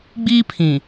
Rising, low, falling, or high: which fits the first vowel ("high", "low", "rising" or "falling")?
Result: high